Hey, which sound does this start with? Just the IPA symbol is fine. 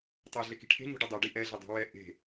tˤ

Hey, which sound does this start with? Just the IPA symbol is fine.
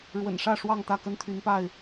ɻ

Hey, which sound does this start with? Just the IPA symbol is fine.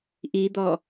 ʔ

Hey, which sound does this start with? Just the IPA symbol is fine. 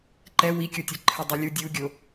ǃ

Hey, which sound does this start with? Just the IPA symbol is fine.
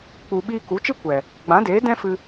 k͡p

